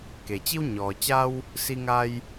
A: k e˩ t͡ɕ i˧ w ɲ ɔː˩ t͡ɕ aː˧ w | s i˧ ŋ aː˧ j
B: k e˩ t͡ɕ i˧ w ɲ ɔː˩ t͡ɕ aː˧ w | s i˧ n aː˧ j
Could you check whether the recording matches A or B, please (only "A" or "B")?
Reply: A